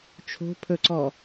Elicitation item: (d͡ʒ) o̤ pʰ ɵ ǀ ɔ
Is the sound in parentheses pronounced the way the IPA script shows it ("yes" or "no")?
no